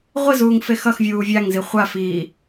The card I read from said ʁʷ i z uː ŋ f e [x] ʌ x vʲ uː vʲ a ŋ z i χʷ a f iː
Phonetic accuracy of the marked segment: correct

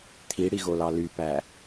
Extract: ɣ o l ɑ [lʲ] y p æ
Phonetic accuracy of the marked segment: incorrect: l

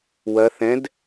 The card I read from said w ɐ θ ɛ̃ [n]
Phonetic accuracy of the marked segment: incorrect: d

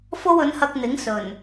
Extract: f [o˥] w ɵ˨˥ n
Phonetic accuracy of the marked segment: correct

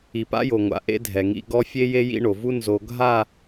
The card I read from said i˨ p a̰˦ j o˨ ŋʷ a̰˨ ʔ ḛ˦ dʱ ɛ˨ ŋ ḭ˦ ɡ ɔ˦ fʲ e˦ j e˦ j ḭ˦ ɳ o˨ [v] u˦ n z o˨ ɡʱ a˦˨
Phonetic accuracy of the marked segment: correct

